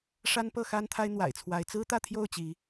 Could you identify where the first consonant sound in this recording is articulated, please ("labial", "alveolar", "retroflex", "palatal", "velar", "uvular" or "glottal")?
retroflex